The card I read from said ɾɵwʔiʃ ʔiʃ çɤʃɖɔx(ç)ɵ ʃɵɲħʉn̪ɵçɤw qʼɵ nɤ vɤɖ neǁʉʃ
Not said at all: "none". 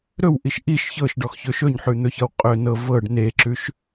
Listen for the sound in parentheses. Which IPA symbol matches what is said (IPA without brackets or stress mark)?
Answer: ç